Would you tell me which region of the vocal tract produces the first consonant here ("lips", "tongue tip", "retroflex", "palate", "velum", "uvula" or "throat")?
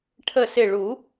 retroflex